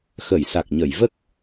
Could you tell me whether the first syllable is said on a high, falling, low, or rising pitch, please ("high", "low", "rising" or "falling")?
low